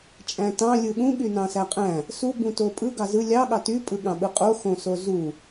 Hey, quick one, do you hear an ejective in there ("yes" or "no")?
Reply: yes